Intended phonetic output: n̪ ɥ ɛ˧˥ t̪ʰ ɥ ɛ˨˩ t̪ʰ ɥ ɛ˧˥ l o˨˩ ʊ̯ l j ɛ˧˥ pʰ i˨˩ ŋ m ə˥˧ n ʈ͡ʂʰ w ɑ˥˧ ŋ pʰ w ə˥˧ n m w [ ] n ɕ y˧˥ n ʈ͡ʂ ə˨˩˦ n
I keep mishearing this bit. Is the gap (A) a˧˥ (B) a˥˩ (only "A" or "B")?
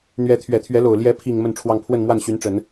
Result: B